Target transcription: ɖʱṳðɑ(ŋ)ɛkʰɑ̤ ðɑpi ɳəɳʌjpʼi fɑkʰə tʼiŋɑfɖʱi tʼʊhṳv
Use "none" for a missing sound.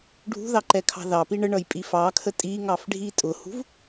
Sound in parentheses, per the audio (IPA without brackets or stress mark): ǃ